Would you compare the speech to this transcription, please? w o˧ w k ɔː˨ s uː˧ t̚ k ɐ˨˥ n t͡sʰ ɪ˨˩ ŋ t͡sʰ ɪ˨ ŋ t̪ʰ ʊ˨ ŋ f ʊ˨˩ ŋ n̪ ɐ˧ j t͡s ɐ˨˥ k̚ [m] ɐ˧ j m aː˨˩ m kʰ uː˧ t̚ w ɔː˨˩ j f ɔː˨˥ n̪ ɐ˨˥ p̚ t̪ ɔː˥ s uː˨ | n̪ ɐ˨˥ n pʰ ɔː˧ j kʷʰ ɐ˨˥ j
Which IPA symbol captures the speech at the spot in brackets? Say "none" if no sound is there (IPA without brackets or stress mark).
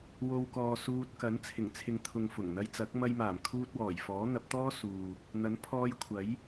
m